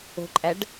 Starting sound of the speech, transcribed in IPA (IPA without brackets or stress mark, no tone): o̤